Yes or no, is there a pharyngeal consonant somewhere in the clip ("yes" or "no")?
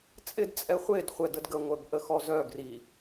no